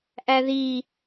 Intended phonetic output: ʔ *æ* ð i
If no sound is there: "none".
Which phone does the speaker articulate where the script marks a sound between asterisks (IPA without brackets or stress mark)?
æ